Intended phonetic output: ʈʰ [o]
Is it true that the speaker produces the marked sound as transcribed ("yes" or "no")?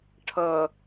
no